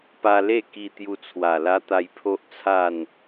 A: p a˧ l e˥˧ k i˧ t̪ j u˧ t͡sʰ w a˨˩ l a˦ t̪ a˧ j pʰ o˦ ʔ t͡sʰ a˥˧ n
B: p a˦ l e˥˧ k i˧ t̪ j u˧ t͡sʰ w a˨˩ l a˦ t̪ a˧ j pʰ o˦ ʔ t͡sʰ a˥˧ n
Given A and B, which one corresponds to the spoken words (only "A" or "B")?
A